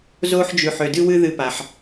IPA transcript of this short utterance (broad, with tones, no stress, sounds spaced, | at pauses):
z oː˦ ħ d͡ʒ ʉ˨ ħ ø˨ d ɨ˦ w ɨ˦ ð ɨ˧ p a˨ ħ